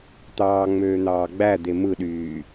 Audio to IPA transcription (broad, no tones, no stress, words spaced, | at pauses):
t̪ɑːŋ͡møːn̪ɑː ɡ͡bæd̪e mɯɗyː